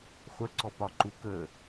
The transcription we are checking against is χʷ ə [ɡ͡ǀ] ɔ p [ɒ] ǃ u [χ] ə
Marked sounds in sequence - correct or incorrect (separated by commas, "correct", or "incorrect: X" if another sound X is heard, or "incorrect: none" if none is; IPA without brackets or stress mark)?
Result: incorrect: ǀ, correct, incorrect: k